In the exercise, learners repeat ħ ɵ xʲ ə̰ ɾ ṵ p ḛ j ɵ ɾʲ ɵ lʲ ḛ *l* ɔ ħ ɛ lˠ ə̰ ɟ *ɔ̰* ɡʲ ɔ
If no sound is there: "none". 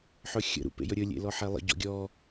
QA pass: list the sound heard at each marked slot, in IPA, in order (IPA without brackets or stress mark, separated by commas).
l, ɔ̰